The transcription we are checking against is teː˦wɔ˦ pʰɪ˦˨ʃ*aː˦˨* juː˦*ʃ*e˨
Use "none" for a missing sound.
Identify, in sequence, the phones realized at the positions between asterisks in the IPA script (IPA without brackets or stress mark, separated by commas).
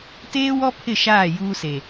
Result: aː˦˨, s